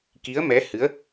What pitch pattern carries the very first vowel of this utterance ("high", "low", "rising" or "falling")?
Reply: rising